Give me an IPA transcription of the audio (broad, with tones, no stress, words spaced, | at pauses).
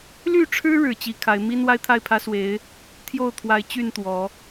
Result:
ly˥˨ʈ͡ʂʰɻ̩˦ ɻɻ̩˨˦t͡ɕi˨˩kʰa˨˦ɪ̯ mi˦n wa˦ɪ̯t̪ʰa˥˨ɪ̯pʰä˦swe˨˦ɪ̯ | t̪ʰjo˥˨ʊ̯ t̪ʰwa˨˩ɪ̯ t͡ɕy˥˨n t̪wɔ˨˦